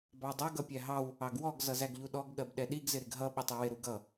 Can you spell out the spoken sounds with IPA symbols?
b ɑ dˤ ʌ ɡ ʌ pʲ æ ɦ ɑ w | ɑ ɡ w ɔ ɡ z ʌ z æ ɡ ʎ u ɗ ɔ ɡ ɠ ɜ b ɗ ɛ ɗ i ɡ z ɪ ɾ ɪ ɡ ɦ ʌ ɓ ɪ tˤ i w ɪ ɾ u ɡ ʌ

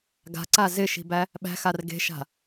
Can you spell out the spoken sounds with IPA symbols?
ɡ a̤ ǀ a z ɪ ʃ i̤ b æ | ɓ æ̤ x a r ɡ e̤ ʃ a̤

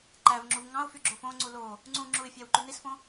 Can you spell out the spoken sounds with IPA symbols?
ǃ æ v ŋ͡ǁ u v ŋ ɑ̃ ʊ̯ f y ɡ͡ǁ o f õ ŋ͡ǀ u l o | ŋ͡ǀ ũ ŋ͡ǁ u ɪ̯ fʲ æ w ǃ y n i s f õ

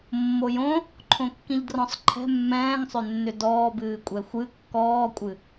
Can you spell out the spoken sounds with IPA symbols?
mː o j õ | ǃʰ õ kː ĩ ʎ d r ɔ̃ sˤ ǃʰ ɛ̤ mː ɛ̃ː ŋ sˤ ʏ nː ʏ d ɔː b ɨː kʷʼ ɛ xʷ ɨ kː ɔː kʷʼ ɨ

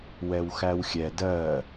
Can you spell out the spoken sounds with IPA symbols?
w ɛ w x æ w xʲ ɛ d ɜ

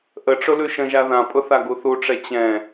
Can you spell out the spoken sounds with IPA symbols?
ʔ ə ʈ͡ʂ ʊ l ʉ ʃ ə̃ ʒ a ð ã pʼ ʊ θ a ɡ u θ u ʈ͡ʂ ɛ t͡ɕ ɛ̃

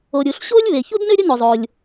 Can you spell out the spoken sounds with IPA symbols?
o˩ ɾʲ u˩ ɬ ɕ oː˥ lʲ β e˩ ç u˥ d n ø˥ ɾʲ ə˥ n o˩ zˤ oː˩ lʲ

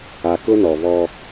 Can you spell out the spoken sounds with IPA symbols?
a˨ k ʊ˦ n ɔ˨ β ɔ˦

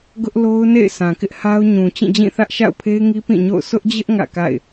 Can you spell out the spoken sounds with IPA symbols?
ɡ ʊ˦ ʔ l o˦ ʊ̯ n ḛ˦˨ ɪ̯ s ã˨ k ɪ˦ ʔ h a˦ ʊ̯ ɲ ũ˨ t͡ɕ ĩ˦˨ d͡ʑ ĩ˦˨ θ ä˦ ʔ ʃ a̰˦˨ ʊ̯ pʰ e˦ ɪ̯ ŋ i˦ p ĩ˦˨ ɲ o̰˦˨ ʊ̯ s ʊ˦ ʔ d͡ʑ ɪ˦ ʔ ŋ ä̰˦˨ k a̰˦˨ ɪ̯

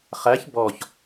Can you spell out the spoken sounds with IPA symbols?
χ æ ç b ɔ ç

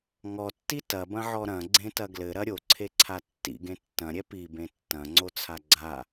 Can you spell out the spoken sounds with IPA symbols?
ŋ ɔ tː i t ɐ b ɐ̃ ʕ ɔ ɾ ɐ̃ ɡ͡ǀ ẽ t ɐ ɡ l ɘ ɾ ɐ ɾʲ o ǀʰ e ǀʰ a tː ḭ ɡ ẽ tː ɐ̃ ɾʲ ɛ p i b ẽ tː ɐ̃ ŋ͡ǀ o t͡sʰ a ɡ͡ǀ a

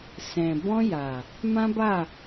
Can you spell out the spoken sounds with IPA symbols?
s ɛ̃˨ b ɔ̃˧ j a˨ | m ã˦ b a˦˨

